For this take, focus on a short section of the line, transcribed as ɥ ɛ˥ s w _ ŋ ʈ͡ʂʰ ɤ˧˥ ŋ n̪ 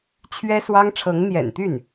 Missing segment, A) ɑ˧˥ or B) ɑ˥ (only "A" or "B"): B